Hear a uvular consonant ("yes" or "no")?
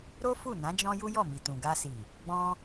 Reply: no